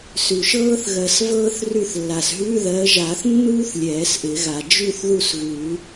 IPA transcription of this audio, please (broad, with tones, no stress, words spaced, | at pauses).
sʉ˨˩ʃɤː˥θ ɣɜ˨˩svɤː˥θ rʉ˥˨θlːa˨˩s ɦʉ˧˥˧ðɜ˨˦ʒa˨˩˦θ nːuː˥θ lʲɛː˨˩˦sʔɪ˨˩˦ɣa˨˩ d͡ʒʉ˥˨θðu˥˨sɣʉ˨˩˦